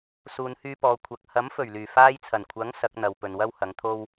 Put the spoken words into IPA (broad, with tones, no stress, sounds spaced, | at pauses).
s uː˨˧ n h yː˧ p ɔː˨˧ kʷʰ ɐ˨ k̚ h ɐ˨˥ m f ɵ˨˩ ɥ l yː˨˩ f aː˧ j t͡sʰ ɐ˨˩ n kʷʰ ɐ˨˥ ŋ s ɐ˨˥ k̚ n̪ ɐ˨˧ w p ɵ˨ n w ɐ˥ w h ɐ˨˥ ŋ t̪ʰ o˥ w